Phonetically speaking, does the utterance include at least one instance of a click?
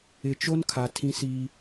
no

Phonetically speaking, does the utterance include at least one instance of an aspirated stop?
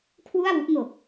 yes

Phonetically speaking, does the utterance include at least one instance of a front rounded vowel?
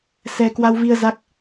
no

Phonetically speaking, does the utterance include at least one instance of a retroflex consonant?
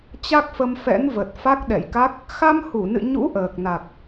no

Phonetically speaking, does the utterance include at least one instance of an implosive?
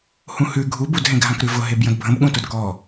yes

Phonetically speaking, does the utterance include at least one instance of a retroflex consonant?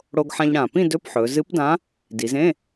yes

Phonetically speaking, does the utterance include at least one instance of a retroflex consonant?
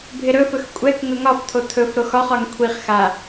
no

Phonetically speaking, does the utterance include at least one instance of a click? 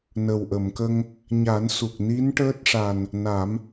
no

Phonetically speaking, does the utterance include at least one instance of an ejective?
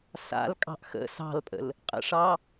yes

